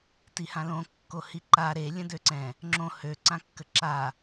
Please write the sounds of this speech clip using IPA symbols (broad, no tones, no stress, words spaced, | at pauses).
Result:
tihãlõ kːohiǃa ɾe lʲə̃døǀɛ̃ | ŋ͡ǁõ hø ǀãkːəǁa